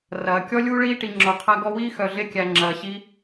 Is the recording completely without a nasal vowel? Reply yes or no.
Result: yes